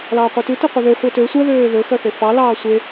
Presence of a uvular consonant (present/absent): present